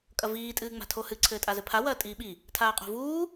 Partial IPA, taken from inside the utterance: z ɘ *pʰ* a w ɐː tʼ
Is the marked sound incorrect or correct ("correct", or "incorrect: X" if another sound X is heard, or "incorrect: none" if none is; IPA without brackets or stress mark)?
correct